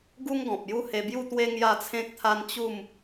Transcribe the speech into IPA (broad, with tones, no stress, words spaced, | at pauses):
ɡu˦ŋɡɔ̃˨p̚ ju˥˧he˧bju˥˧t̪we˦ ŋja˥˧t͡sʰẽ˦k̚t̪ʰa˦n t͡ɕu˥˧m